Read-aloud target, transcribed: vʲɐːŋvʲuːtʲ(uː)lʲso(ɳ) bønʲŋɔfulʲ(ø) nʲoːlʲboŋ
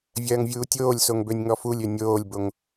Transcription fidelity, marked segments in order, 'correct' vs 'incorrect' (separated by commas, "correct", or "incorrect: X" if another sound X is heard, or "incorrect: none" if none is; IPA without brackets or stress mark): incorrect: oː, incorrect: ŋ, correct